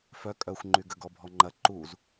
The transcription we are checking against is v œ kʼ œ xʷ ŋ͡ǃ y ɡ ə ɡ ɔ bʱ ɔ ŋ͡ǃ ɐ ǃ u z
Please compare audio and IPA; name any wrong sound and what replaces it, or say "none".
v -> f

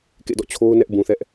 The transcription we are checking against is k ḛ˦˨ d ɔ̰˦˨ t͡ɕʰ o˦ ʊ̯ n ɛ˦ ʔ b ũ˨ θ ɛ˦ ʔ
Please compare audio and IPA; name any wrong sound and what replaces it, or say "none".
none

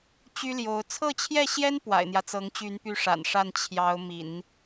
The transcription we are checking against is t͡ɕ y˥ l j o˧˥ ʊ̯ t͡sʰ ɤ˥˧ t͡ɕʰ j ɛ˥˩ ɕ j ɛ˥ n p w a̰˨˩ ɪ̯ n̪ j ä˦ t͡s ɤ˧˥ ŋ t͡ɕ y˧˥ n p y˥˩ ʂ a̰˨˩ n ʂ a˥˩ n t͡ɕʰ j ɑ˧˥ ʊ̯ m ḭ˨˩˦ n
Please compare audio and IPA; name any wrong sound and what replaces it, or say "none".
none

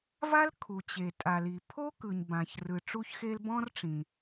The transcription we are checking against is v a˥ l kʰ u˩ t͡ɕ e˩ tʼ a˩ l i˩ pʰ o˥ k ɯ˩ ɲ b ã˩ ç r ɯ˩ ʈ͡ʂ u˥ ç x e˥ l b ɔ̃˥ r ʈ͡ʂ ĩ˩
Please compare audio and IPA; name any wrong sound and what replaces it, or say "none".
none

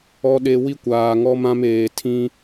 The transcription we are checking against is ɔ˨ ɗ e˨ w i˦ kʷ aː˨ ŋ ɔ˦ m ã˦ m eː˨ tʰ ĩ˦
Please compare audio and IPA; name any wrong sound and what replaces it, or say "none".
none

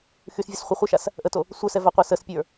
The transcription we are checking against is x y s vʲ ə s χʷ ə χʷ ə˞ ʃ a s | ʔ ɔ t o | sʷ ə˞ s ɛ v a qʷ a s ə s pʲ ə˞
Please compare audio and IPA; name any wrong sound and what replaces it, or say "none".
ɔ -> ə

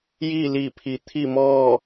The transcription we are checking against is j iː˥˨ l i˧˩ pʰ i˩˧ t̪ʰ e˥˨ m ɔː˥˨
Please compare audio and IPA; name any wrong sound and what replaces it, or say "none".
e˥˨ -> i˥˨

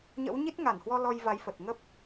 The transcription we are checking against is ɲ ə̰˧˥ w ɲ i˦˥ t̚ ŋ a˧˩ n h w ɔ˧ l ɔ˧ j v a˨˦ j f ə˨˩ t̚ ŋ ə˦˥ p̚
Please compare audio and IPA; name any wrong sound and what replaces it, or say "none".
none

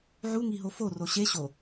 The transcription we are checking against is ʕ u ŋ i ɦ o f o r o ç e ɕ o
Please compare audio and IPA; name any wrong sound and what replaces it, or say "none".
ç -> ɕ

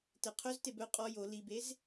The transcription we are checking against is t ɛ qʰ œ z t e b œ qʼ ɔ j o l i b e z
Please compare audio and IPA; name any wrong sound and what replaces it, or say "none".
none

